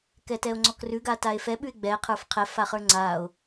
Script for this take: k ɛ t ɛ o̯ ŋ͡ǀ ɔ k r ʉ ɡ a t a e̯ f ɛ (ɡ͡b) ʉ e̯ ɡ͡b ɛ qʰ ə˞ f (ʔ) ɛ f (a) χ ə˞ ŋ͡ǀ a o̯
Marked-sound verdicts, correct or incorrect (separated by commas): incorrect, incorrect, correct